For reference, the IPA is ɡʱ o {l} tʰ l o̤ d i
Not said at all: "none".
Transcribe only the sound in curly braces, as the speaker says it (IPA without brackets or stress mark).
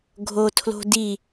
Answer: none